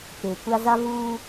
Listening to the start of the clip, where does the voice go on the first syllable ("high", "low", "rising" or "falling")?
low